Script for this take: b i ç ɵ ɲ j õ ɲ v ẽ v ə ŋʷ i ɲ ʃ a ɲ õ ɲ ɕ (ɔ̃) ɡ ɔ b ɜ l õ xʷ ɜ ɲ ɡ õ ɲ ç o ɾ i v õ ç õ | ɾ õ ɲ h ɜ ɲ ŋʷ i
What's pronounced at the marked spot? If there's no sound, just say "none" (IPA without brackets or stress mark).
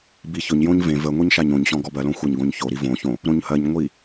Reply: ɔ̃